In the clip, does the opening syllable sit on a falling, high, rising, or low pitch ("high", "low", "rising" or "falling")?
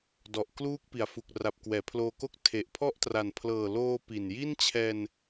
low